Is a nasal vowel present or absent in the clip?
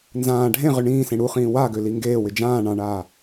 present